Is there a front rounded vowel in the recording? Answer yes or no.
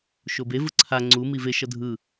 no